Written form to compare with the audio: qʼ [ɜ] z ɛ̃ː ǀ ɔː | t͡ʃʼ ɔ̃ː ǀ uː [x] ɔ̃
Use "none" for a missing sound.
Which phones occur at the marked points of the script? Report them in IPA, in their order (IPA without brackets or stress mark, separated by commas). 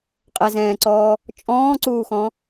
ɛ, x